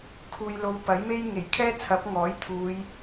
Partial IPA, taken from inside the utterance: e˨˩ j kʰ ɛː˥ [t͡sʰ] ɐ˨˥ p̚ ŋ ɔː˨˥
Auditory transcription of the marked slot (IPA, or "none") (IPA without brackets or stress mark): t͡sʰ